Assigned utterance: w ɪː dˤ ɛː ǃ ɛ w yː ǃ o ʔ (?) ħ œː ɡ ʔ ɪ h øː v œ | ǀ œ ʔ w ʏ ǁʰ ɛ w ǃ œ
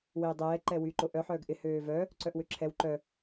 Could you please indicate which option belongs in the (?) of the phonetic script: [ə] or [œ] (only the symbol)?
œ